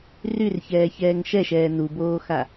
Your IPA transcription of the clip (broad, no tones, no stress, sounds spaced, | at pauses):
r y r ç ɛː ç ɛː ŋ ʃ ɛ ʃ ɛː n u b oː x a